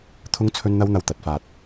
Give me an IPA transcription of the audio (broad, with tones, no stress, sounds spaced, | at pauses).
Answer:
t̪ʰ ʊ˧ ŋ t͡sʰ ɵ˧ n n̪ ɐ˧ w n̪ ɐ˨ w t̪ ɐ˨˥ t̚ f aː˧ t̚